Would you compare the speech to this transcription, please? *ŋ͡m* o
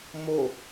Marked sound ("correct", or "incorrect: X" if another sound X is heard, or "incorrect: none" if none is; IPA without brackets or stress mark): incorrect: m